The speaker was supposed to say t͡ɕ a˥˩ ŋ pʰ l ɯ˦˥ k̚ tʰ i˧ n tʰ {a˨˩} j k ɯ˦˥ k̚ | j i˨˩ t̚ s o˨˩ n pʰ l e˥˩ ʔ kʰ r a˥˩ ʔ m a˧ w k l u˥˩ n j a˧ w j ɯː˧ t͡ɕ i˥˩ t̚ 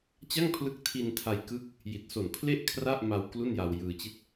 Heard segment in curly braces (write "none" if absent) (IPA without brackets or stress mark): a˧